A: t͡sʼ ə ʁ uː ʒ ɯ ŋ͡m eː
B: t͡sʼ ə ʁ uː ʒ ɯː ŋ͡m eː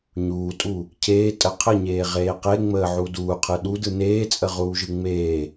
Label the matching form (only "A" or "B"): A